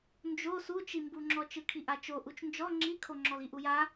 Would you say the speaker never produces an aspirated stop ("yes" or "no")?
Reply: no